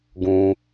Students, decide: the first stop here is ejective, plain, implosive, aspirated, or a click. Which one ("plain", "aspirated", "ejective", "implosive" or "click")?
plain